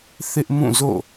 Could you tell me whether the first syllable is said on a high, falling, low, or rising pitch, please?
high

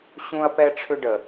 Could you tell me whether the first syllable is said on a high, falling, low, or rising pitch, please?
high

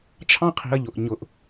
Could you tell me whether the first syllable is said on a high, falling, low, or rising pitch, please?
high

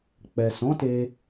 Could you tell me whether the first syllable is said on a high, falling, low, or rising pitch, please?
low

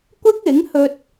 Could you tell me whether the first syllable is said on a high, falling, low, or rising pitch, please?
high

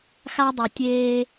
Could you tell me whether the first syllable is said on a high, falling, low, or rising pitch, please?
high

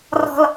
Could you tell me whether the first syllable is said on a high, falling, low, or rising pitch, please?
low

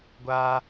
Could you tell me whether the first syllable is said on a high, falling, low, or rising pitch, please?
high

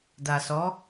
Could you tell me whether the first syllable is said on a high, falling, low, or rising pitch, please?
low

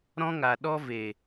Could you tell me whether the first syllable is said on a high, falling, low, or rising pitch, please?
high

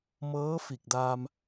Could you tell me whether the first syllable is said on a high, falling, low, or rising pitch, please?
rising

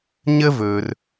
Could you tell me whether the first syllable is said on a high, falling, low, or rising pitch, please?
high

